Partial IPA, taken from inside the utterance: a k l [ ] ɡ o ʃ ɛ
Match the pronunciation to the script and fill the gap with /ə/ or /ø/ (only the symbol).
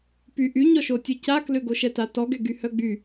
ø